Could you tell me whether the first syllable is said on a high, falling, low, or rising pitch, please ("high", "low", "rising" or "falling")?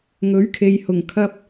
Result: rising